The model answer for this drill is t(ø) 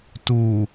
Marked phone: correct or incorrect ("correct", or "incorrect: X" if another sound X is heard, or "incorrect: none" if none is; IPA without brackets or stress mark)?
incorrect: u